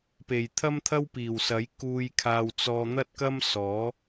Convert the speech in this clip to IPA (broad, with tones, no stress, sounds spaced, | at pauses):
p e˨˩ j t̪ʰ ɐ˥ m t̪ʰ ɐ˥ w p iː˨˩ w s ɐ˨˥ j k uː˧ j kʰ aː˧ w t͡s ɔː˧ n̪ ɐ˥ t̚ k ɐ˥ m s ɔː˨˥